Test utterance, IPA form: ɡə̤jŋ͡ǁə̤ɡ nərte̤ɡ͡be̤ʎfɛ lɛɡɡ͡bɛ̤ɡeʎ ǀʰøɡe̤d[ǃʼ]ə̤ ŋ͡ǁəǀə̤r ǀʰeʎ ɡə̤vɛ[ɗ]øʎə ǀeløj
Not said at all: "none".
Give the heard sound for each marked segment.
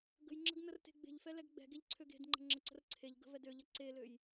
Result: ŋ͡ǃ, d

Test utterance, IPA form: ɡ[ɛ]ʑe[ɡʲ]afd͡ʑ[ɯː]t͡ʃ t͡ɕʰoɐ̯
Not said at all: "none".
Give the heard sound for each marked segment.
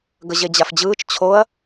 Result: ə, d͡ʑ, ɯː

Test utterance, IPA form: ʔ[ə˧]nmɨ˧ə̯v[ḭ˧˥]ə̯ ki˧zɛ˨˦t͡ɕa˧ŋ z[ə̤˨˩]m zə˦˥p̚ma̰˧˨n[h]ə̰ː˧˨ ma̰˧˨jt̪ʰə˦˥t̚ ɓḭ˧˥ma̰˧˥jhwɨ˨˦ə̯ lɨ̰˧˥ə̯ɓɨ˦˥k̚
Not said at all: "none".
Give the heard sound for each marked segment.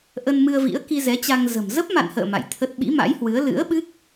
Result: ə˧, ḭ˧˥, ə̤˨˩, h

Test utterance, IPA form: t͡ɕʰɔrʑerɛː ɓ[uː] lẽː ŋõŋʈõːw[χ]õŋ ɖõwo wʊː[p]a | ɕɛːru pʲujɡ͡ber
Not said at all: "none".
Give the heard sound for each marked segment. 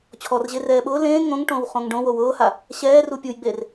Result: ʊː, χ, h

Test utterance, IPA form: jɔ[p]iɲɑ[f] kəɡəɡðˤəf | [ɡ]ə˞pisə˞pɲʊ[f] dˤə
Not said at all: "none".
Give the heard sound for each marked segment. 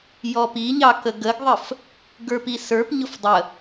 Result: p, none, ɡ, f

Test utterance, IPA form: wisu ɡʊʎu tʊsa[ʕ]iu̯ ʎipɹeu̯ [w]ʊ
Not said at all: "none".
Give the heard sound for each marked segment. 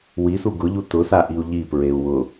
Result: ʔ, w

